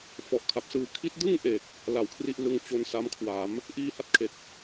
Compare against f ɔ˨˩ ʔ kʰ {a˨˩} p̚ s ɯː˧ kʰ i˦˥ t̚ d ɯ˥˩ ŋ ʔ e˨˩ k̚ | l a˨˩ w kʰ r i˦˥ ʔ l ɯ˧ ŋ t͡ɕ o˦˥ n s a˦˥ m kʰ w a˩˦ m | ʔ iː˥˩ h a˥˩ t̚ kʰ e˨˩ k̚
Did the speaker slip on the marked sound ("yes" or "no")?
no